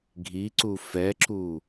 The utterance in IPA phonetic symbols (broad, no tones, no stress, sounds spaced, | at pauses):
ɡʱ i ǀ u f ɛ ǁ u